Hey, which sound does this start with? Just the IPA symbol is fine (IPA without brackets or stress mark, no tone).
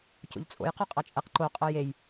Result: c